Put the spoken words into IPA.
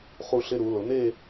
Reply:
χ u˧ ɬ ɪ˧ ɾ u˩˧ l ʊ˩˧ n̪ e˥˧

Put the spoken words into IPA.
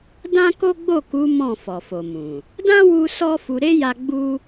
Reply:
d ã˦ k o˦ ɡ͡b o˦˨ k u˨˦ m ɔ̃˦˨ f ɔ˨ f o˨ m ũ˨ | d ã˦ w u˧ s ɔ˦ f u˧ ɾ e˦ j a˧ ɡ͡b u˦

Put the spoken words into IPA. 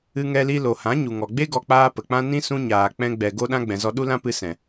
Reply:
ɨ˧ ŋ ɛ˧ l i˧ l o˨ h ã˨˦ ɲ u˨ ŋ ɔ˨ ɡ͡b e˦ ɡ ɔ˧ k͡p aː˦ p ə˨ k͡p ã˦ n ĩ˦ s ũ˧ ɲ aː˨ k͡p ɛ̃˧ ɡ͡b ɛ˨ ɡ o˦ ɗ ã˦ ɡ͡b ɛ̃˨ z ɔ˧ ɗ u˦ l ã˦ p ɨ˧ s ɛ̃˨

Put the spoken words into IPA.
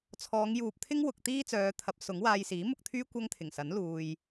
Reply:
t͡sʰ ɔː˨˧ ŋ j uː˨ p̚ t̪ʰ ɪ˥ ŋ w ʊ˨ k̚ t̪ iː˥ t͡s œː˨˧ t̪ʰ ɐ˨˥ p̚ s ʊ˨˥ ŋ w aː˧ j s iː˨˥ m ʊ˧ k̚ t̪ʰ yː˥ kʷ ɐ˥ ŋ t̪ʰ ɪ˨˩ ŋ s ɐ˨˥ n l uː˨ j

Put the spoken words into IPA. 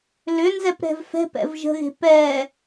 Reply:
l ʏ n z ɛ p ɾ ɛ̤ v f ɛ̤ p ɛ̰ v ʒ ə̤ ɣ e̤ p ɛ

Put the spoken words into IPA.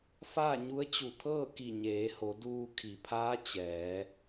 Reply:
f aː˥˨ ɲ u˧˥ ə̯ t͡ɕ u˧˩ t̪ʰ ɤː˥˨ k i˧˩ ɲ eː˩˧ h o˩˧ d uː˧ kʰ i˩˧ pʰ aː˧˥ t͡ɕ ɛː˩˧

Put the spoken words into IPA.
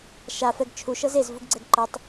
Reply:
ʃ a f ɛ ɡ t͡ʃʰ u ʃ ɤ z e z v u ɡ ɡ͡ǀ ɛ ɡ ǃ ɤ tˤ

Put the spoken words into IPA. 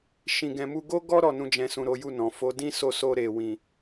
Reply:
ʃ ĩ˧ ɡ ɛ̃˧ m u˦ ɡ o˦ ɡ ɔ˦ ɾ ɔ˦˨ n ũ˧ d͡ʒ ɛ̃˨ s ũ˨ ɾ o˨˦ j u˦˨ n ɔ̃˨ f o˨˦ d ĩ˦ s o˧ s o˧ ɾ e˨ w ĩ˨

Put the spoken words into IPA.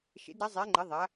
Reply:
ʃ ḛ˨˥ d ɾ ɛ˨˥ zˤ e˨˥ ŋ͡ǃ ɛ˨˥ ðˤ a˨˥

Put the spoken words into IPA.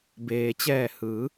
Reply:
b eː˩ t͡ɕ ɛː˧˩ h ɯː˩˧

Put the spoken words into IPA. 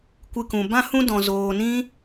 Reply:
kʷ ɨ˦ k ũ˧ b ã˦ h ũ˦ d ɔ̃˧ z oː˧ n ĩ˦

